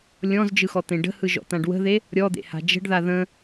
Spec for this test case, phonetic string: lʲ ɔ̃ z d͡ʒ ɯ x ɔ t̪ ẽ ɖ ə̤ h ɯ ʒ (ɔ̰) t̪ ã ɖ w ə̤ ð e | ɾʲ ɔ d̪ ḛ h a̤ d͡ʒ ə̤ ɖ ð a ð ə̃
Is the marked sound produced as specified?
yes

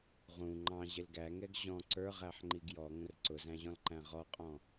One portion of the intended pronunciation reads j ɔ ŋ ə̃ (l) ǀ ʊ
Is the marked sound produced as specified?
no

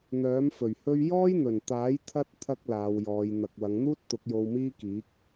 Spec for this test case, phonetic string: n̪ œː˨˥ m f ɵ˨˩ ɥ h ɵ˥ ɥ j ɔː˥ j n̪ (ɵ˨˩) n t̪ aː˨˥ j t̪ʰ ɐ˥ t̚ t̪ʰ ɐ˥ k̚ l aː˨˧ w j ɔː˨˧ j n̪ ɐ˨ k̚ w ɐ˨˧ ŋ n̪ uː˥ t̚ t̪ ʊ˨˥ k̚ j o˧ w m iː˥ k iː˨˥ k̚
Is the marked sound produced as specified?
yes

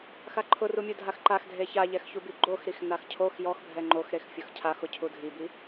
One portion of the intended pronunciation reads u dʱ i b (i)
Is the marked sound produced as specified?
yes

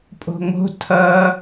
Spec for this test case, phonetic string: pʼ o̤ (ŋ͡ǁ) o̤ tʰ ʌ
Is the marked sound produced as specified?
no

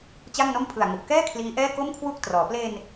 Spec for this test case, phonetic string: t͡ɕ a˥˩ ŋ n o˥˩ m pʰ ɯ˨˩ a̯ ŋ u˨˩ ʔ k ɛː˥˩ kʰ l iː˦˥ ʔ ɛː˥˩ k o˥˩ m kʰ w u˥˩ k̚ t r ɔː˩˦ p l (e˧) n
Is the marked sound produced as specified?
yes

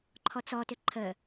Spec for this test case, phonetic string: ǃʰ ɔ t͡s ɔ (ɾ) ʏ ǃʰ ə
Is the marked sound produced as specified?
no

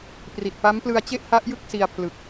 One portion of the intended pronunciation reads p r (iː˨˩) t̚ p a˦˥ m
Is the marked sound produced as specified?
no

